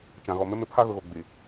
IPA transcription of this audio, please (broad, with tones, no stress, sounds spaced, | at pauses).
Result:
t͡ʃ ã˨ ɣ ɔ˨ m ɪ˦ m ɪ˨˦ pʰ a˦ ɣ ʊ˨ ɣ o˨ ɡ͡b i˨